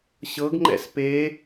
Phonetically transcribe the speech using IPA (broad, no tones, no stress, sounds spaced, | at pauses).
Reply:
ɕ ɤ ɡ ŋ͡ǃ ɛ̰ s p e